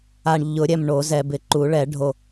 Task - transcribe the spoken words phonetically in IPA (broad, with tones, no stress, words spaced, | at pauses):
a˨ɳʎʊ˨˩˦ɾʲɛ˨m ɳo˨˩˦zɛ˨ bɪ˨˩˦ǃu˨˩˦ɭɛ˨˩˦ ɖʱo˨